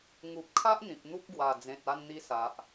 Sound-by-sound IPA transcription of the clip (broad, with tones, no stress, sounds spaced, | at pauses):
ŋ u˨ p̚ kʰ a˦ ʔ n̪ ĩ˨ p̚ n̪ u˦ p̚ ɡ w a˨˩ d͡z ẽ˨ t̚ a˧ n n̪ i˧ s a˨ ʔ